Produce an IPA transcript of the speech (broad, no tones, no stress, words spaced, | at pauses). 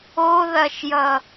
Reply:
oðɐʃjʌ